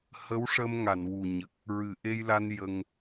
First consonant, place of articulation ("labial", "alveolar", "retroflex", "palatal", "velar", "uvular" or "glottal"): glottal